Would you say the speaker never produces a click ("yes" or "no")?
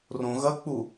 yes